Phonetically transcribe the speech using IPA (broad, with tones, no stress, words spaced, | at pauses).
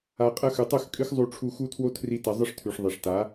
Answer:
a˨qʼɐ˧ xʉ˨tˤʉ˦˨xkʼɨ˦x zˤu˧ʈ͡ʂʰu˧ xu˦tʰwo˦tʰri˧ tɐ˧zˤɨ˦ʂtʰʉ˨ʂ ðˤi˨ʂta˨˦